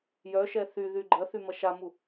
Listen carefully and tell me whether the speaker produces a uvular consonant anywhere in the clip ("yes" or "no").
no